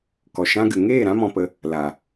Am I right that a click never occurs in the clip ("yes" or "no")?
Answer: yes